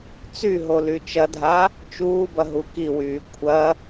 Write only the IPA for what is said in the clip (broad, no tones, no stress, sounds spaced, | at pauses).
t͡s y ɦ o l y t͡ʃ ɐ dʱ a | t͡ʃ uː b ɐ ɦ u k i w yː kʷʰ ɐ